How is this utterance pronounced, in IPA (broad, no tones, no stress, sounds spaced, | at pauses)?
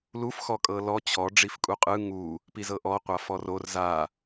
l u f x ɔ kʼ ɤ l ɔ t͡ɕʰ ɔ ɖ͡ʐ i f kʼ u qʼ ɯ ŋ u | p i z ɤ ʔ ɔ qʷ a f ɔ r o r z a